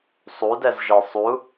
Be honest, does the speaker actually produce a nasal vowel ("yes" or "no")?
no